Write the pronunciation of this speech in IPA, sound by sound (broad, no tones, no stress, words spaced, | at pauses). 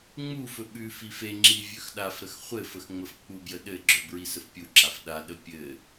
ŋ͡mufɵ ɓʉ fifeŋ͡ǁi vʲɵxɗafɾəx χʷɘfəx ŋ͡məfk͡pubjə ɗɘɡ͡ǁɵ bɹisəfpʲuǁaf ɗaɗə pʲɘ